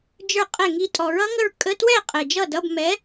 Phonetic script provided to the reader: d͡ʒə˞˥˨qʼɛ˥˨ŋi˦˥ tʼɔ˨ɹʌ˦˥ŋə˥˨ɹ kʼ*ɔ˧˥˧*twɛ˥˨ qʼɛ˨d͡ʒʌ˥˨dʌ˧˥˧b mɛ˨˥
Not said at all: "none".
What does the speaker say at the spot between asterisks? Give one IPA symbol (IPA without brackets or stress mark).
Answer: ə˧˥˧